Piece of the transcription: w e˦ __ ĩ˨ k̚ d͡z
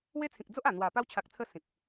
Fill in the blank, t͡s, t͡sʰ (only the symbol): t͡sʰ